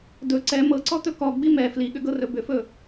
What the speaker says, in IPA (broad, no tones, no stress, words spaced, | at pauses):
dɵ ǀɛ mɤǀɔt̪ɵ kɔɡ͡bi mɛ fliɠʏɡɤrɵ bʏfɵ